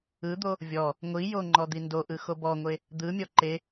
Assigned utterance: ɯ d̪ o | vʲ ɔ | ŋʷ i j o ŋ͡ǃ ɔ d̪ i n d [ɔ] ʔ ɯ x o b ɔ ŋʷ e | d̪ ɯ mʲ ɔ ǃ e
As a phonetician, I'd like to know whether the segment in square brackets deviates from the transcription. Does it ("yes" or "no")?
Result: yes